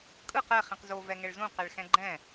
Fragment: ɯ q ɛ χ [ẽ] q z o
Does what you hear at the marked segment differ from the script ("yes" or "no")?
yes